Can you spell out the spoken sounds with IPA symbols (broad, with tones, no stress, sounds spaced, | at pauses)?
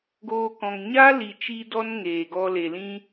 ɡ oː˦ k ɔ̃˧ ŋ ɲ a˦ l i˨ t͡ʃ i˧ d ɔ˧ n ŋ eː˨ ɡ ɔ˦ l e˨ l ĩ˦